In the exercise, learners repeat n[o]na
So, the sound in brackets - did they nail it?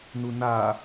no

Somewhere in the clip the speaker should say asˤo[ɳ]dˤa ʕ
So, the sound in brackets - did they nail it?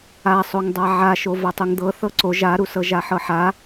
no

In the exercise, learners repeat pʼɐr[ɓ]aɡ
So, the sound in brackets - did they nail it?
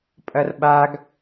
yes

